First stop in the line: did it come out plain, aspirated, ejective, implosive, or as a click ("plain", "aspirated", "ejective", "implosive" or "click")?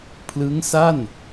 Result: aspirated